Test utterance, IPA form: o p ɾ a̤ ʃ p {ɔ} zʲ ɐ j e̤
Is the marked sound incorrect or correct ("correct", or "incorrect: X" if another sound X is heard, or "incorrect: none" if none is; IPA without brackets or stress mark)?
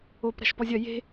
correct